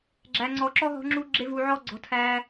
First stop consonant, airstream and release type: click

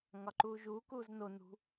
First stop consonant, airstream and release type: click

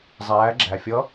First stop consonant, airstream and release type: click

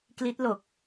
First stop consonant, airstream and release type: plain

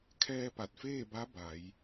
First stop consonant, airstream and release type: aspirated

